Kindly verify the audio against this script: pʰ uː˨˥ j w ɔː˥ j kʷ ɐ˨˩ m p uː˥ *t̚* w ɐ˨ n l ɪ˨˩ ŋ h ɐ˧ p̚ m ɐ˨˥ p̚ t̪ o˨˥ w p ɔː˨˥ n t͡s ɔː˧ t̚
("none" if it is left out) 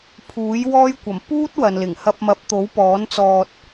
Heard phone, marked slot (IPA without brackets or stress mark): t̚